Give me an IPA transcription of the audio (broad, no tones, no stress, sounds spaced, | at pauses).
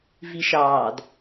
v i ʃ ɑː d